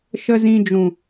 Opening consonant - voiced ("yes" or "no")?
no